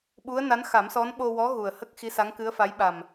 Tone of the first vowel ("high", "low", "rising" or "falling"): rising